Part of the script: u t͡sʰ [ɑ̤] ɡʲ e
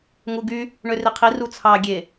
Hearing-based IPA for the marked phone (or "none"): ɑ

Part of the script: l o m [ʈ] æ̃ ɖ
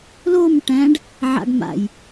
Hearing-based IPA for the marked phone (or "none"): ʈ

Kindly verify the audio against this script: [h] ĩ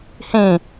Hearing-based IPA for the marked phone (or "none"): h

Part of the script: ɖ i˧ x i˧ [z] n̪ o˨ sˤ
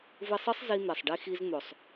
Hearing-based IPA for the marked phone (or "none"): z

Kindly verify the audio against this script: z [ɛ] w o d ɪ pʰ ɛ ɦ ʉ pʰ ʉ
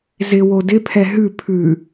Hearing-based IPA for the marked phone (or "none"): ɪ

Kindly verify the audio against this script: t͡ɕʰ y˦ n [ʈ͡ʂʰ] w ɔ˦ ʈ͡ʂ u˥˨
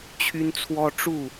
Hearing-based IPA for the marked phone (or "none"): t͡sʰ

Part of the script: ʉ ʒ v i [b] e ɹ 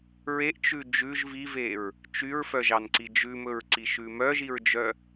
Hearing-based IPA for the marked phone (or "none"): v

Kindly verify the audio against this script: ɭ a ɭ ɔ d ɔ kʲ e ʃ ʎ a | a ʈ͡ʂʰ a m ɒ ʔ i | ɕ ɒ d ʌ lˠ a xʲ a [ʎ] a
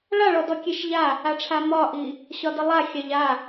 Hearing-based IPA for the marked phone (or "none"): ʎ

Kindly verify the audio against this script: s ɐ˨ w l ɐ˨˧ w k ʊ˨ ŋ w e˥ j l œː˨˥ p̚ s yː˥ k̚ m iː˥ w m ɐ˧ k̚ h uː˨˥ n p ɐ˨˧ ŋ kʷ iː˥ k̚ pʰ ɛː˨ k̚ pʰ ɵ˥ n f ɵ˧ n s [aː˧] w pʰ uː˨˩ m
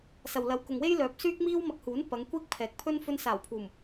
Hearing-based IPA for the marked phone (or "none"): aː˨˩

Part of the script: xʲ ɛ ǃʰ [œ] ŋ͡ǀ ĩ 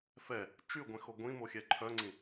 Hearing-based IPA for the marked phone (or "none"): œ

